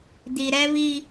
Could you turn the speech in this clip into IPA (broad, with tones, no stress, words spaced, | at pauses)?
di˨ɾɛ˦βi˦